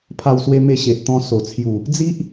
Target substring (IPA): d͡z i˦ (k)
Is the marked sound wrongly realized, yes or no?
yes